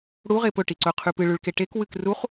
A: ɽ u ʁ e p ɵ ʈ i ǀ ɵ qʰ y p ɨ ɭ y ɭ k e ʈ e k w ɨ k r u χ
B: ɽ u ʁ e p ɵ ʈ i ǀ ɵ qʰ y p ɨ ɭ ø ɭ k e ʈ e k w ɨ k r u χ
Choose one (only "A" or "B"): A